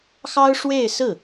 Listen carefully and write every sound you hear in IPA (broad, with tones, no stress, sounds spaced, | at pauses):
x ɑ˥ ʊ̯ ʂ w e˥˧ ɪ̯ s ɹ̩˥˩